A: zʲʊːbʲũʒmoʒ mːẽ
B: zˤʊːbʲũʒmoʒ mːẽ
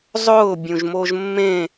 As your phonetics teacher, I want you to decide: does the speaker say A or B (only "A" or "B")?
B